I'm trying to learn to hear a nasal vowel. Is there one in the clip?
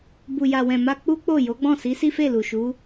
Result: yes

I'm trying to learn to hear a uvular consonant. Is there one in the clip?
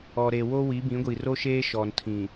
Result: no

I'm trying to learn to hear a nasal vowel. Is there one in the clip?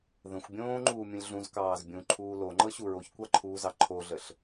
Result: yes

